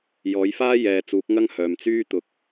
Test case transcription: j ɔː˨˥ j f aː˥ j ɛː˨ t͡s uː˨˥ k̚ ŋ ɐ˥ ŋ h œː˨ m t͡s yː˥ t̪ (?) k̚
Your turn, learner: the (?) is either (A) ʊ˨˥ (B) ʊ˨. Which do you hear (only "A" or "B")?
A